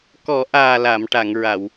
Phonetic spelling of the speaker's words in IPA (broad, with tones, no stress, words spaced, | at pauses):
kɔ˨˩˦ʔaː˨˩ la˨˩˨mʈa˨˩˨ŋɹa˨˩˨w